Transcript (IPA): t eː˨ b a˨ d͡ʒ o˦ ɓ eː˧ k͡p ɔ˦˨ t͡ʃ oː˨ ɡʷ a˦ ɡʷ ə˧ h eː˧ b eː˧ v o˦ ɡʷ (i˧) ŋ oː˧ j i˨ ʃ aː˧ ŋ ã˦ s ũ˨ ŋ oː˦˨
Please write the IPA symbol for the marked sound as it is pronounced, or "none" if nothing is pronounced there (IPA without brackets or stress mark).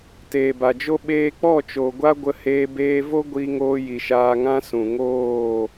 i˧